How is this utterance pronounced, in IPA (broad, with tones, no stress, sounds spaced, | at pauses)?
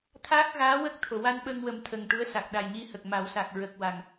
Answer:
t̪ʰ aː˦˥ k̚ ɣ aː˧˥ w ə˦˥ k̚ t̪ʰ o˨˩˨ w a˧ n ɓ ə˧ ŋ w ə˨˩˦ m t̪ʰ ə˨˩ ŋ ʈ u˧˥ ə̯ s a˨˩ k̚ ɗ a˨˩ j ɲ i˧ h ə˨˩ k̚ m a˨˩˦ w s a˨˩ k̚ ɹ ə˨˩ k̚ w a˨˩ ŋ